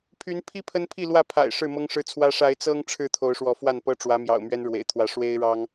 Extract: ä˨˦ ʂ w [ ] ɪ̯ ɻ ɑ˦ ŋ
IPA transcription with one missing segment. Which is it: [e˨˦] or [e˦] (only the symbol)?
e˦